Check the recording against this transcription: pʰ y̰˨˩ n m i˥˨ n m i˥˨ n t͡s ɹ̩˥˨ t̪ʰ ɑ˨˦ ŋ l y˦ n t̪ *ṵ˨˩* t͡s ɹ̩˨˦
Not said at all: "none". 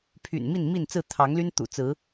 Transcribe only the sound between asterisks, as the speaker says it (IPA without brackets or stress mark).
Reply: ṵ˨˩